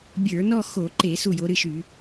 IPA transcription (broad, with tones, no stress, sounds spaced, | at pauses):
bʲ ə˞˧˩˧ n ɔ˥˧ x o˧˩˧ ǃ e˧˩˧ s u˥˩ j o˨˦ ɾ ɨ˥˩ ʃ y˧˩˧